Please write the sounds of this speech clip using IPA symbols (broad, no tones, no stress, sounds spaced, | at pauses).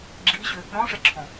ɡ͡ǁ i ɕ ʏ | ɾ ɔ̃ ʂ ɛ ǁʰ ɔ̃